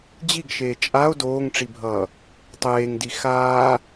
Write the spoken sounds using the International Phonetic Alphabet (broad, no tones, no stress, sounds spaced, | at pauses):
d͡ʑ i ɡ ʃ eː t͡ʃʼ a o̯ d oː ŋ ʈ͡ʂ i bʱ ʌː | tˤ eː ŋ d i x aː